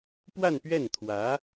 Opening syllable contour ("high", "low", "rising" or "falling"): falling